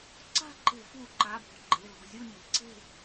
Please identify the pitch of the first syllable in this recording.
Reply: falling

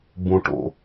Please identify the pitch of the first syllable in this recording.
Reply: low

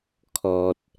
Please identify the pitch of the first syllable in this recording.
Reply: low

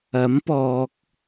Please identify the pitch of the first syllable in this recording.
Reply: rising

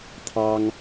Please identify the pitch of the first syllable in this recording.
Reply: high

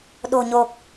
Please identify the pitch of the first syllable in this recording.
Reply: low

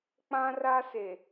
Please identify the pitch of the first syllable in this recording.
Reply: high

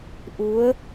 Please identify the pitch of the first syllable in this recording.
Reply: rising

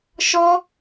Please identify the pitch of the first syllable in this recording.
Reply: high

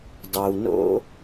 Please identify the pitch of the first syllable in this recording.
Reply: low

